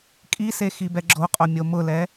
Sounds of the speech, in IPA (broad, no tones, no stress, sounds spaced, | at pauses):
kʼ i s e x i b ɛ ɡ͡ǁ o qʼ o mʲ o m ʊ l ɛ